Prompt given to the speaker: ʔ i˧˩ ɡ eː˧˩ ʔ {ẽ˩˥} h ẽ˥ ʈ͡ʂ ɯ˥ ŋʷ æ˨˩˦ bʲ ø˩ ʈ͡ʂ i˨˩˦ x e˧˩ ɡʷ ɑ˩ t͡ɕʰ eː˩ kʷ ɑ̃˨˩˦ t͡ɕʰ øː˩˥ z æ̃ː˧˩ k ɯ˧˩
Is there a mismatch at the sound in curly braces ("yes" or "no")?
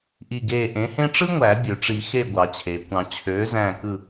no